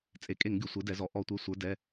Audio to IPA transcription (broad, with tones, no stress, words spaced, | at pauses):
t͡sʼe˩˧kʼe˧˩˧ŋ ɡʲo˩˧sʷe˩˥dɛ˩˧zɔ˩˧ ʔɔ˧˩˧ tʷe˩˧˩sʷə˞˩˧ dɛ˩˧˩